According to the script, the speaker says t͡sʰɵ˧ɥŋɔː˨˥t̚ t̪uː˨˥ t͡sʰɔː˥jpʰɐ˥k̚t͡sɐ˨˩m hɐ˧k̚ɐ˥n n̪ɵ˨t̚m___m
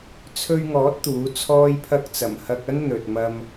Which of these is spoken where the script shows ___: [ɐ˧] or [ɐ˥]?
ɐ˧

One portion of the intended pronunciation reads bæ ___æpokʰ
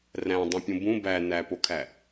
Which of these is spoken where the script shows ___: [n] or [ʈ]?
n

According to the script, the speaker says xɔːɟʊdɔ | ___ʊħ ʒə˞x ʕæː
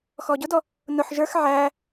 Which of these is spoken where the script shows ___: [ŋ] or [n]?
n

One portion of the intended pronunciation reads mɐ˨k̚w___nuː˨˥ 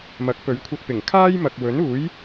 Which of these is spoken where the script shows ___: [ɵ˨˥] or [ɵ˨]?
ɵ˨˥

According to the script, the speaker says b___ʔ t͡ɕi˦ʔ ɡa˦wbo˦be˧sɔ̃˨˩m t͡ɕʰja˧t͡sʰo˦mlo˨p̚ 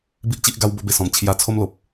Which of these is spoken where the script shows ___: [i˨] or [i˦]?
i˦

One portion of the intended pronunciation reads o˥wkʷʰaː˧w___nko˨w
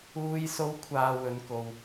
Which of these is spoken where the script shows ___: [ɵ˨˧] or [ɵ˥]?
ɵ˨˧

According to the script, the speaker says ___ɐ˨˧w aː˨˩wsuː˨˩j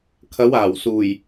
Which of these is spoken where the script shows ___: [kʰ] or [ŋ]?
kʰ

